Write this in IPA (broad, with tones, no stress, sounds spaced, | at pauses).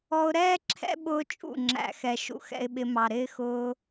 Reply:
ɔ˧ ʊ̯ ɾ ɛː˦ ǁʰ ɛ̰˦ ɓ ʊː˦ t͡ʃʼ ṵ˦˨ ŋ͡ǁ æ̰˨ x ɛ˨ ʃ ṵ˧ x ɛ̰˧ ɪ̯ ɓ ɪ˧ m ɑ˨ ɾ ɪː˦ x ʊː˧